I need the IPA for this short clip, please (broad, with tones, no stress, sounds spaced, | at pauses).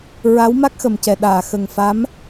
ɹ a˧˥ w m a˦˥ k̚ x ə˨˩ m c ɛ˨˩ ɗ aː˨˩˨ x ə˨˩ ŋ f a˧˥ m